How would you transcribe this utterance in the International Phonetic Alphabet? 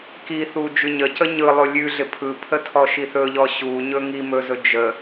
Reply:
k i θ u d͡ʒ ʉ ɲ ə c ə ɲ ɯ lˠ o lʲ ʉ ɮ ɪ pʰ ɯ pʰ ə tʰ ɔ ʃ i θ ɵ ʎ ɔ ɕ u ɲ ɵ ŋ i m ɵ z ɵ d͡ʒ ə

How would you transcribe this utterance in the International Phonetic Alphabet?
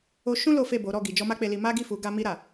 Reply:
o˧ ʃ ũ˦ l o˦ f e˦˨ b o˨˦ ɾ ɔ˦˨ ɡ i˨ d͡ʒ ɔ˧ m a˦ k͡p e˧ l i˧ m a˦ ɡ i˦˨ f u˨˦ ɡ a˧ m i˧ ɾ a˨

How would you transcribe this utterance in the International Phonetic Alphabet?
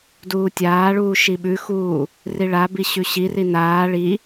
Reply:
d uː tʲ aː ɭ uː ʃ i ɓ ʉ x uː | r i ɭ a b i ɕ ʉ ɕ i r i n aː ɭ i

